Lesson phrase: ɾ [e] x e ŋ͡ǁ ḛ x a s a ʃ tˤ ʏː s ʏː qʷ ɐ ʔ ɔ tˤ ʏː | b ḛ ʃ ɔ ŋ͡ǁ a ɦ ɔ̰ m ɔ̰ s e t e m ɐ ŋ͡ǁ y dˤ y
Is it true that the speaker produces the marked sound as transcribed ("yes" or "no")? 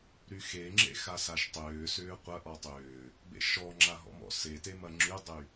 no